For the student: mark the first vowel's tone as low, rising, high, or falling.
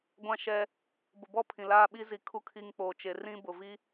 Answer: falling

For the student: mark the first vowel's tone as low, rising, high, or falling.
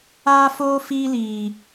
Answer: high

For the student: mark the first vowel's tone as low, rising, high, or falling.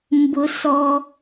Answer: high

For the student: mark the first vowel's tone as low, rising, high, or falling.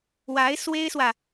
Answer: rising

